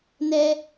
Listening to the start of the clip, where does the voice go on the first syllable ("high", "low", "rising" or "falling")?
high